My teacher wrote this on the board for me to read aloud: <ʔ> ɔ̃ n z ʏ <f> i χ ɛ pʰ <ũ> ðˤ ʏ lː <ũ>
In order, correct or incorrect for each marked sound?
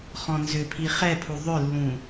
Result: incorrect: χ, incorrect: pʰ, incorrect: u, correct

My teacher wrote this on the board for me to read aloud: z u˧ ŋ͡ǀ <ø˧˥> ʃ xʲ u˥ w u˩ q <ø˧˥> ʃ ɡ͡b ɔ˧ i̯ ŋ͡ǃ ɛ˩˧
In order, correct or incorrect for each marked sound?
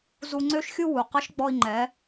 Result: incorrect: ø˥, incorrect: ə˧˥

